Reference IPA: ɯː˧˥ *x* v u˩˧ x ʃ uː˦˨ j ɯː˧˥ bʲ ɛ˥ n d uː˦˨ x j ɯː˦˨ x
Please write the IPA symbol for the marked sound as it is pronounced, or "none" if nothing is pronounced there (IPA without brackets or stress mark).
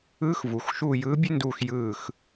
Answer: x